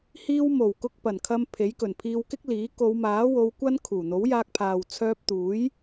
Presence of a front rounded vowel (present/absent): present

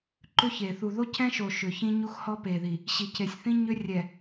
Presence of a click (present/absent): present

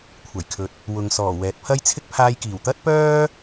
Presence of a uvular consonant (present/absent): absent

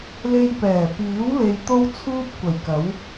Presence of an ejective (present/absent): absent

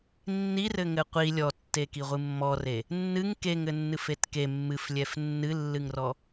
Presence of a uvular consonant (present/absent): present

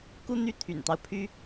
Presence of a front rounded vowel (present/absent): present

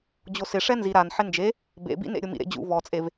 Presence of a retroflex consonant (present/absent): present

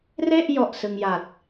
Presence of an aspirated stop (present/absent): absent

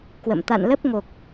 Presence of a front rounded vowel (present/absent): absent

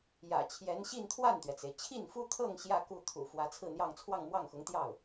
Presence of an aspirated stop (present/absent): present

